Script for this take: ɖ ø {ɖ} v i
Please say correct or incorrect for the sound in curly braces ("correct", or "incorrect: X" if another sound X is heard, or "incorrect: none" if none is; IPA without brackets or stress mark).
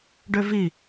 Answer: incorrect: none